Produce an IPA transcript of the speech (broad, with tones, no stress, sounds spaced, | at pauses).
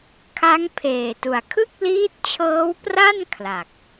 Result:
kʰ a˦˥ ŋ pʰ eː˨˩ t u˨˩ a̯ kʰ ɯ˥˩ k̚ l iː˦˥ t̚ t͡ɕʰ ɤː˦˥ w p r a˥˩ n kʰ l a˨˩ k̚